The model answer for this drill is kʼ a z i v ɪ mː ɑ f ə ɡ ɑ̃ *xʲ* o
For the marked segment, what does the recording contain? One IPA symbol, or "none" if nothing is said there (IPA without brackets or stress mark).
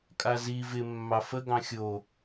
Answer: xʲ